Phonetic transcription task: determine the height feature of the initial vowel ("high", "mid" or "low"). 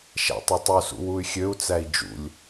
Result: low